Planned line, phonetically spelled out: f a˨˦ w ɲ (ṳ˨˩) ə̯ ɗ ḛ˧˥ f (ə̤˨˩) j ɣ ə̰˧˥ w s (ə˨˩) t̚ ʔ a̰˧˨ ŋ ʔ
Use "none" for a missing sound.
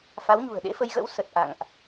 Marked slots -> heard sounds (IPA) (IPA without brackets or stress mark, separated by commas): ṳ˨˩, ə˧, ə˨˩